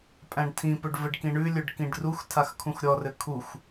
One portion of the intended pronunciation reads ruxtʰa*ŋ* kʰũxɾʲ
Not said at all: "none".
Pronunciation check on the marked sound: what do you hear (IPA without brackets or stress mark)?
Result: x